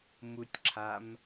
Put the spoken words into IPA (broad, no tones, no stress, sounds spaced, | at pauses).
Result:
m u tʲ ǁʰ a m